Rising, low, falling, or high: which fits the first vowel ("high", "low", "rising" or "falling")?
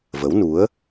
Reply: rising